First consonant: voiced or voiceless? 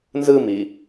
voiced